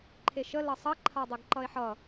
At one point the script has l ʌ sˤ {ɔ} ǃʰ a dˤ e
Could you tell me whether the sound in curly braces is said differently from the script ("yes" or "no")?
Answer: yes